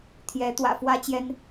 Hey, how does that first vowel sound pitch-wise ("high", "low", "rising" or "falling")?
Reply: rising